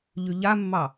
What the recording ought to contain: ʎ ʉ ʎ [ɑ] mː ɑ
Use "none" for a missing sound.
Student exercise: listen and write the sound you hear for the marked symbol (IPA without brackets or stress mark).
a